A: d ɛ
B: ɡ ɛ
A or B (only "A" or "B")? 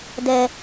A